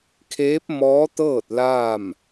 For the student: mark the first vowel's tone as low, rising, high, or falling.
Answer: rising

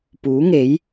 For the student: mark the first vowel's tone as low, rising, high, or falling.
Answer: rising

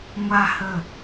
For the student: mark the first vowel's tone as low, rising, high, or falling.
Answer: high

